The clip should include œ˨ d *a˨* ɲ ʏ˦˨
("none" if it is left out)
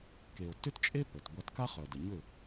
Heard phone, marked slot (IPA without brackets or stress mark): ə˨